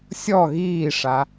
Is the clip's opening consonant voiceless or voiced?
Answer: voiceless